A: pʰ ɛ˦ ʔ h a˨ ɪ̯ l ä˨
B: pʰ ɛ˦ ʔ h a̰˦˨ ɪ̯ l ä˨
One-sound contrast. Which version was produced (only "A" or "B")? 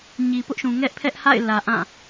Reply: B